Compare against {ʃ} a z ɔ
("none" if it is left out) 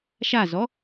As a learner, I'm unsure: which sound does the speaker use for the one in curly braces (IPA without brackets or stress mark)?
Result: ʃ